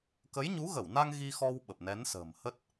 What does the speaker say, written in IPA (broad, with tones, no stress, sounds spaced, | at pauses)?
k ə˨˦ j ɲ u˨˦ ɣ ə˧˩ w n a˧ ŋ ɣ i˧ x ɔ˧ w ɓ ə˨˩ p̚ n ɛ˨˦ n s ə̤ː˨˩ m h ə˦˥ t̚